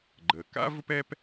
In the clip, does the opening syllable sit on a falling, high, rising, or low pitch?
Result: low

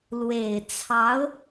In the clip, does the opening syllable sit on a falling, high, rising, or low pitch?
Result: low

